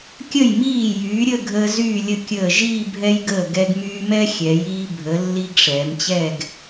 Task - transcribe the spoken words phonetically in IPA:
kʲ ə˧˩ j m iː˧˩ j yː˩˧ ɾʲ ə˥˧ ɡʱ əː˧ z yː˧˩ lʲ ə˧˩ kʲ əː˧˩ ʒ iː˥˧ bʱ ɛ˧ j ɡ əː˧˩ ɡ ɛ˧ ɡ m yː˧ m ɛ˥ xʲ ɛ˩˧ j iː˧ bʱ ə˩˧ lː i˧ ɡ ʂ ɛː˩˧ m t͡ɕ ɛ˥˧ ɡ

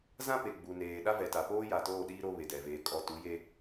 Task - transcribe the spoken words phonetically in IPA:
z ã˦ p e˨ ɡ͡b u˨ n eː˨ ɗ a˦ v ɛ˨ t a˨ p oː˦ j a˨ t oː˦˨ ɗ iː˦ ɾ o˦ β e˨ d ɛ˨ v eː˨˦ kʼ ɔ˦ t u˨˦ j e˦

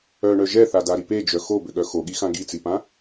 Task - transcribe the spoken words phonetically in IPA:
œ ɳ œ ʒ ɛ θ a d a ɾ i p e d͡ʒ œ x o b ʏ ɠ œ x o ɠ i x ã ɡ i t͡s i p ã

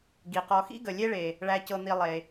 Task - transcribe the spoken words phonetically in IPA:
ɡ i˩ q ɔ˨ x ḭ˥ ɡ ə˩ lʲ e˦ ɭ e˩ | ɭ æ˨ c ɤ˨ n̪ i˨ lˠ e˩

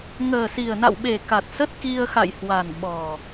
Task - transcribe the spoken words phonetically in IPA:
ŋ əː˨˩ s i˨˩ ə̯ n a̰˧˨ w ɓ e˨˩ k a˨˩ t̚ s ə˦˥ t̚ k i˧ ə̯ x a̰˧˨ j h w a˨˩ n ɓ ɔ˨˩

